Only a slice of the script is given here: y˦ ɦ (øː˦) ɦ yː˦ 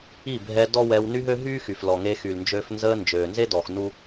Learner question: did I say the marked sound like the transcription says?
no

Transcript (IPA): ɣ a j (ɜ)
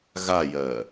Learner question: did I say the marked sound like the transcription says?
yes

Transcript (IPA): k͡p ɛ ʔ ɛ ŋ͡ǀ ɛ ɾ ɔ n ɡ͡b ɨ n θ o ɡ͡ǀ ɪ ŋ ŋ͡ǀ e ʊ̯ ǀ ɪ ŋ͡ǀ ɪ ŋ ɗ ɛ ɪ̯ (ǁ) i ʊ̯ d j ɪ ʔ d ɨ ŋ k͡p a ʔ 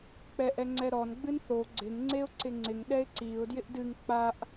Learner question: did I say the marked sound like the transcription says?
no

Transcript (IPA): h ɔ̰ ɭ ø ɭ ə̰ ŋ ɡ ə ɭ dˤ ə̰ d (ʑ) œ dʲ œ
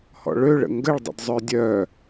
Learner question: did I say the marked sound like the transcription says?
no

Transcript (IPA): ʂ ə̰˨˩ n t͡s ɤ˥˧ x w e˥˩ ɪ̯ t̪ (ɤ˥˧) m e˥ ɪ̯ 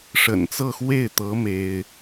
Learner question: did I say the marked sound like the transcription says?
no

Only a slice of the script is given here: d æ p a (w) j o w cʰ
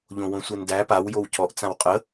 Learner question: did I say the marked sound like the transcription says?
yes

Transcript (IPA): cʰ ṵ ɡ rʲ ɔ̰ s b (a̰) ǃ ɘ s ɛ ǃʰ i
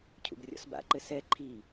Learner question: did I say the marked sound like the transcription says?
yes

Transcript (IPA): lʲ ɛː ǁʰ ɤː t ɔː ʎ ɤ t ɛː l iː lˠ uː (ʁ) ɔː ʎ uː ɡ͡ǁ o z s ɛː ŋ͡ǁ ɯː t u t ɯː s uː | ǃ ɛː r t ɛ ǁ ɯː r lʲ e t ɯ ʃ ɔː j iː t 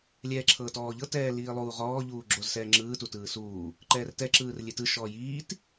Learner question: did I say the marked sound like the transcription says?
yes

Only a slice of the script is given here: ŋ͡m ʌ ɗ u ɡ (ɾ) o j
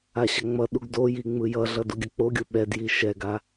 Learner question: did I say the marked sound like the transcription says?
no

